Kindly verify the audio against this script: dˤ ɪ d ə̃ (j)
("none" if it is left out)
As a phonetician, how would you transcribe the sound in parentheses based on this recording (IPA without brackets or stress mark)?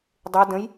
j